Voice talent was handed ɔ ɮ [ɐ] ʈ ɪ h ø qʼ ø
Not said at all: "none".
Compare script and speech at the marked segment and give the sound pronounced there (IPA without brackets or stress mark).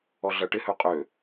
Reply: ɐ